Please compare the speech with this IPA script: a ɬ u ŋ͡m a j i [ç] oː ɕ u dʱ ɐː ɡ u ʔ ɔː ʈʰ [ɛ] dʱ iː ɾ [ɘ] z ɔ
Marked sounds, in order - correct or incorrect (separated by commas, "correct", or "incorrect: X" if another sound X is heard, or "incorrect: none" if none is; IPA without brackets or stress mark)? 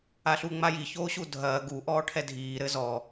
correct, correct, correct